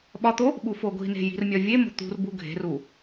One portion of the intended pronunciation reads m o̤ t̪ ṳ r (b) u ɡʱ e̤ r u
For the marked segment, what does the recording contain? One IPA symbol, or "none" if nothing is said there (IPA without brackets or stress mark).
b